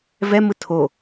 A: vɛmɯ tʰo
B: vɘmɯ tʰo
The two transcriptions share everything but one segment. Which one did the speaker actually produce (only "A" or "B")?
A